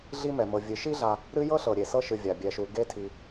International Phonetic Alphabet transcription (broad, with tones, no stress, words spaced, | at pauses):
ɮi˦mɛ˩ mɤ˩vʲɨ˩ʃi˥ɮa˨ | ɾɨ˦jɤ˥ɬɤ˩ ɾʲe˩sɤ˦ ʃɨ˨vʲa˩bʲɛ˨ʃu˨ ɡe˦tʰi˨